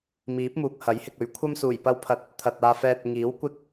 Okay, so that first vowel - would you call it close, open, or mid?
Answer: close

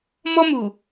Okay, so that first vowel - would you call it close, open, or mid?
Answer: mid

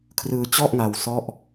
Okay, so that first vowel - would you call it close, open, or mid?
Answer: close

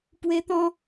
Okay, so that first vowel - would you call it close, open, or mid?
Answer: mid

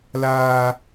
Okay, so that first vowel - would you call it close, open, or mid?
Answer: open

